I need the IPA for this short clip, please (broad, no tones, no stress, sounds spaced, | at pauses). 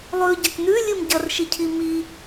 lˠ ʉ ɟ ɐ k n ʉ lʲ ɨ m ɟ ɐ r ʃ i cʰ i m i